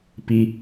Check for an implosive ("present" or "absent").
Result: absent